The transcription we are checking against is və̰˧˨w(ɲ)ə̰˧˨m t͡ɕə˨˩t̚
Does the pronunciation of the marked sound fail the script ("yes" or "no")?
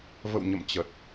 no